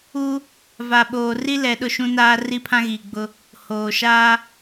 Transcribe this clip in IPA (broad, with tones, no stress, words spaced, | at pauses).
u˦ | va˨ɓoː˨ ri˦lɛ˨ ɗʊ˦˨ʃũ˦naː˦ ri˦pʰã˦ɣiː˨ɡ͡bʊ˦ | hoː˨ʃaː˦